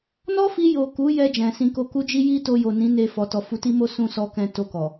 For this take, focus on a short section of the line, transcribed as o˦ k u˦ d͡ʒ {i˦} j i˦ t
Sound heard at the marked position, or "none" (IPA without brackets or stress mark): i˦